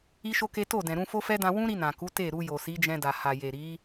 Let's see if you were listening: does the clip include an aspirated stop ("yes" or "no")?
no